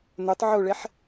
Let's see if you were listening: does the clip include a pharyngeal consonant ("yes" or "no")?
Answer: yes